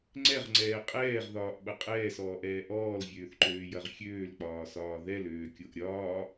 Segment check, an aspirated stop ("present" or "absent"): absent